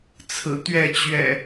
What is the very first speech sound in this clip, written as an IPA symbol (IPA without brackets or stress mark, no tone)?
t͡sʰ